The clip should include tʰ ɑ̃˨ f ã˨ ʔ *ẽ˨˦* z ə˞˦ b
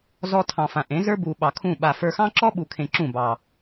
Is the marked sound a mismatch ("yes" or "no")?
no